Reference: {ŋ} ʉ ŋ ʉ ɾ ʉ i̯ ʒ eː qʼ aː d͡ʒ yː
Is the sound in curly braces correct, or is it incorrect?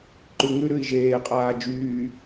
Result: incorrect: ǃ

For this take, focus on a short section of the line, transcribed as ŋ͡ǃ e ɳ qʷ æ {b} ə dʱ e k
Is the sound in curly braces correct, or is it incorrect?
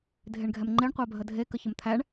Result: incorrect: bʱ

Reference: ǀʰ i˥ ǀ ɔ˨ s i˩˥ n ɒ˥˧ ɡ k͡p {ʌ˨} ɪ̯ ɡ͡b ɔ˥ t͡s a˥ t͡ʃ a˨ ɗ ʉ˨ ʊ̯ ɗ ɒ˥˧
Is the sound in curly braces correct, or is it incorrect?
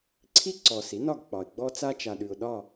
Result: incorrect: ɒ˨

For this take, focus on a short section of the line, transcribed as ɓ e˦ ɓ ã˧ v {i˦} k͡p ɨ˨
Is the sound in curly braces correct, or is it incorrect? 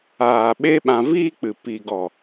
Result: incorrect: iː˦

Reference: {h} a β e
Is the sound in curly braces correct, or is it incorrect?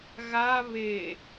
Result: incorrect: ɣ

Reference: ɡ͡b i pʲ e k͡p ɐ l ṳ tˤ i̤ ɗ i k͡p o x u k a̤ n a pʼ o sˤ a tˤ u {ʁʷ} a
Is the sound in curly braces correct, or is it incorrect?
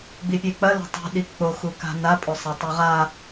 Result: incorrect: ʁ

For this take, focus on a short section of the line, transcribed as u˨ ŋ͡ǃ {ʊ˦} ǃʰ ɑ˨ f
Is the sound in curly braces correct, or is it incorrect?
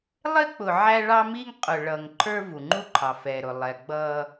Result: incorrect: u˦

